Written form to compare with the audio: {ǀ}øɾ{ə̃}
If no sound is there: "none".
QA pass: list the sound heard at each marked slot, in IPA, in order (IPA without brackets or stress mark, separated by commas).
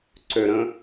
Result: ǀ, ə̃